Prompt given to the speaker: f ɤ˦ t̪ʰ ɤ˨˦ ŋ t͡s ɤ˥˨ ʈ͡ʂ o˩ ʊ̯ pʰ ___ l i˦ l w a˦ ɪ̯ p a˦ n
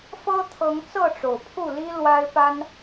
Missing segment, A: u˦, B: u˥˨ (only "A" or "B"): B